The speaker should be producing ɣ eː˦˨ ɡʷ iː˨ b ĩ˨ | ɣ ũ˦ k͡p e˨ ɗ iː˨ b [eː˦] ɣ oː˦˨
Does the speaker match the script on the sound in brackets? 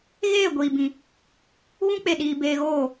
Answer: no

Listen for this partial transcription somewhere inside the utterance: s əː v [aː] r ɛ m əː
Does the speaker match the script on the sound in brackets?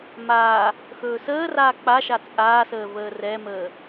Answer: no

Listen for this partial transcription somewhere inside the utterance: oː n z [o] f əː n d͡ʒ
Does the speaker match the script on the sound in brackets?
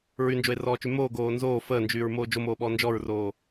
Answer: no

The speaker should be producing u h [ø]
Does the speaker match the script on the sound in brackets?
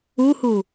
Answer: no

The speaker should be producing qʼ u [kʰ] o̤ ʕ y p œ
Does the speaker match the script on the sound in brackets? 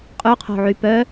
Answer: no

